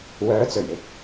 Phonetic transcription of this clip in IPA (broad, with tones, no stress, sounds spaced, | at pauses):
w œː˨˥ t͡s ɵ˨˩ ɥ ɪ˧ k̚